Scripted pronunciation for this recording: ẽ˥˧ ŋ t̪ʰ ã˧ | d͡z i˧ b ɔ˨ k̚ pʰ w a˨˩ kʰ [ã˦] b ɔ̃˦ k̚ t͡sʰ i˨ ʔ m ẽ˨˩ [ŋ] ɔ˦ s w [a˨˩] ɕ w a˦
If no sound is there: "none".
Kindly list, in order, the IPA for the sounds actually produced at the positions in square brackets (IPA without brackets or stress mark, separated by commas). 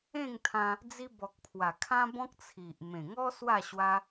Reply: ã˦, ŋ, a˥˧